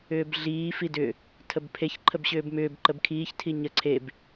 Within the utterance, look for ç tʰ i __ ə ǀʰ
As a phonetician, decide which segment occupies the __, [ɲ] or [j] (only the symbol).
ɲ